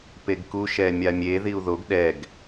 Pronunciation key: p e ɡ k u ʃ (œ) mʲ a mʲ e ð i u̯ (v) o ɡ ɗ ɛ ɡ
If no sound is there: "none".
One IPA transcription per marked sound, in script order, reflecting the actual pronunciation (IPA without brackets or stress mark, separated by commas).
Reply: ɛ, ð